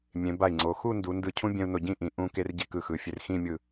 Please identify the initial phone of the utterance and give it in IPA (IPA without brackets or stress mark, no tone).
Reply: mʲ